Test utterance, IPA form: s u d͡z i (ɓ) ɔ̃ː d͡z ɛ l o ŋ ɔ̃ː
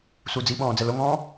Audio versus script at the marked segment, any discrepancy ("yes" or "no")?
no